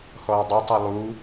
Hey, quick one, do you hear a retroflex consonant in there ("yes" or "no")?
no